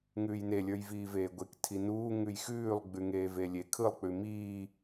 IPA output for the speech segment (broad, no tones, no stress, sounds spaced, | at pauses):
ŋ ʉː j n e lʲ ə˞ j v iː v eː ɡʷ e k tʰ i n uː ŋ ʉ j x ʉː lˠ ɡ͡b ʉ ŋ eː v e lʲ e kʰ ɯ lˠ k͡p ʉ m iː